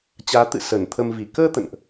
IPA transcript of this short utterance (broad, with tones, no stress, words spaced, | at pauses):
t͡ɕaː˨˦t̪ɨ̰˧˨ sə˧˩nt̪ʰə˧mvi˧˩ kəː˧ t̪ə̰˧˨nʔ